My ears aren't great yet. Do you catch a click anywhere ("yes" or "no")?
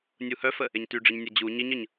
no